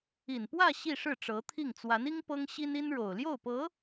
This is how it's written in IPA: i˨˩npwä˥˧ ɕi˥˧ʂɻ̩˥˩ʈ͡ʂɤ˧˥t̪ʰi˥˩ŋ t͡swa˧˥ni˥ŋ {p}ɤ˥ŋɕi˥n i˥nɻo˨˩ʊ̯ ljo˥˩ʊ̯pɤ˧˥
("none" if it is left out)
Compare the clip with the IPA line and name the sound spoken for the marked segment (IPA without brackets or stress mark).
p